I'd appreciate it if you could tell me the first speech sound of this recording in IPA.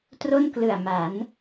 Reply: t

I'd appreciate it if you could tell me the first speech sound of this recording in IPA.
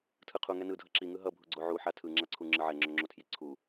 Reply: tʰ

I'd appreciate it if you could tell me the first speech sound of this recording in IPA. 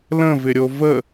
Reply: l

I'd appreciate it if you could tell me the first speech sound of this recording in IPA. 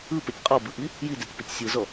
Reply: ɯ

